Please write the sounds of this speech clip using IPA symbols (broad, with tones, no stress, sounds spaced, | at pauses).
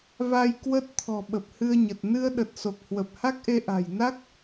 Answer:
v a˧ j k w ə˦˥ t̚ t̪ʰ ɔ̤˨˩ ɓ ə˨˩ p̚ h ɨ˧ ə̯ ɲ ə˨˩ t̚ n ɨ˧ ə̯ ɗ ə˨˩ t̚ s o˨˩ k̚ h w ə˨˩ p̚ h a˦˥ k̚ ʔ e˧ ʔ a̤˨˩ j n a˦˥ k̚